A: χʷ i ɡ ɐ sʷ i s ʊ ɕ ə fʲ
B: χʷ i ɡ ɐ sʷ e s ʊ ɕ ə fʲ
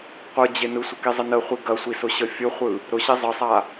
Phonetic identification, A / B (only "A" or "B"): A